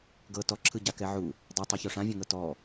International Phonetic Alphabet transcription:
ɡɤ tɔǁʰɯɟakɛ ʕu | dˤatˤeço ʂãvʲɔ̃ŋɤ tɔ

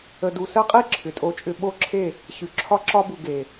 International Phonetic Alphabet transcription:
ə˨du˨ sɜ˦qʼi˦ ǁʰʏ˨tʼo˦t͡ʃʼʏ˦ ɓo˦ǁʰe˦˨ | ɕʉ˨ ǁʰɒ˦ǁɒ˦bu˨ ɡe˨

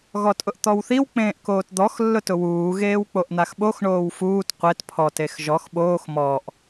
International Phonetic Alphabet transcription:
ɣɔtʼʊʔt̪ɔwθiw k͡pẽːʔkoːtd̪ɔx lːʊtʊwuː ɣeːwk͡poʔn̪axɓox ɳoːwfuːt qʷet pʰɔt exʒɔx ɓoːx mɔʔ

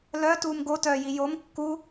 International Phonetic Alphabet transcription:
lœ tuːmɡotœːji jom kːu

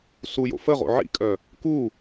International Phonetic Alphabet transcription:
sujo̰ fəʁo̰ ʕḭkʼœ | ku

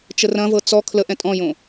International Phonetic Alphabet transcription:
t͡ʃərɐ̃vɤ t͡sɔ kʰləʔɛ̃ tʼɔ̃jõ

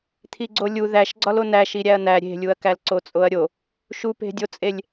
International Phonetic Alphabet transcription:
t̪ʰiɡ͡ǀolʲu ðæʃɡ͡ǀɒlo næʃi ɾʲæɐ̯næ ɾʲe̤lʲuɐ̯kælǀo t͡sʼoɐ̯ɾʲo | ʃupe̤dʲot͡sʼelʲ

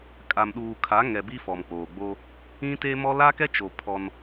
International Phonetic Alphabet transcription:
kʼa˨mɗuː˨kʰa˨˦ ŋɛ˨bi˦ fɔ˨mk͡poː˨ ɡ͡bo˦ | ĩ˦te˦mɔ˦ la˦kɛ˦t͡ʃo˨ pʰɔ˦n

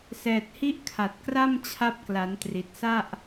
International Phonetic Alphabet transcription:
sɛː˨˩t̚hi˦˥ʔkʰa˨˩t̚ kra˥˩mt͡ɕʰa˦˥p̚kla˩˦ntri˨˩t̚ sa˥˩ʔ

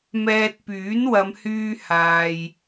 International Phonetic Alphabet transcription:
mɛː˧t̚ pyː˨˥nwɐ˨˧mhyː˧ haː˨j

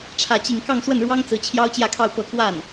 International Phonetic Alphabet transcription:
ʈ͡ʂʰä˥˧t͡ɕi˥˧ŋ kɑ˥˧ŋswə˥˩nɻwɑ˥ŋt͡sɹ̩˧˥ t͡ɕʰjɑ˥ʊ̯t͡ɕjä˥˧kʰɑ˥˧ʊ̯ pɤ˥˧kwa˥˩n

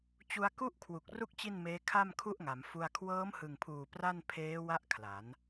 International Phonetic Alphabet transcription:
t͡ɕu˧a̯ku˥˩ʔ kʰwu˨˩k̚ru˥˩k̚ t͡ɕi˥˩nmeː˦˥ kʰa˥˩mkʰu˥˩ʔŋa˩˦mfu˧a̯ kʰwɤː˦˥mhɯ˨˩ŋpʰuː˨˩ pra˥˩n pʰeː˦˥wa˦˥ʔ kʰla˩˦n

